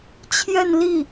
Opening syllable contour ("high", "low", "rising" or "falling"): falling